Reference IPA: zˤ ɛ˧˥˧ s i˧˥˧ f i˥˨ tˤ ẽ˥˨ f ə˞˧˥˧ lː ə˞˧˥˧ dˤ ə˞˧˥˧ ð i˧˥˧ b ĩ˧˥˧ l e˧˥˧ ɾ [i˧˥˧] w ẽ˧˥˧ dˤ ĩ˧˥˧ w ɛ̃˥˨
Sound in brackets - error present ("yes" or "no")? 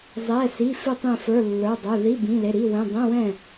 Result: no